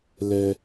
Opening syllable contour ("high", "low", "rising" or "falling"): high